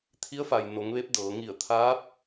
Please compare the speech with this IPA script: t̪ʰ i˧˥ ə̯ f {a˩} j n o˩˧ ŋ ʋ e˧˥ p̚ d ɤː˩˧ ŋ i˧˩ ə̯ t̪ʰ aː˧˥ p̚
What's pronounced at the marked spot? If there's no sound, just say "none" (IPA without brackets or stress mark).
a˩